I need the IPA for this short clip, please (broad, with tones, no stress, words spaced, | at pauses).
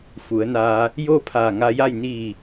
fu˩˧ə̯naː˧ | joː˥˨pʰaː˧˩ŋa˧ja˥˨j niː˧˩